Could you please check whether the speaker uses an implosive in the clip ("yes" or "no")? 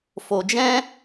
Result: no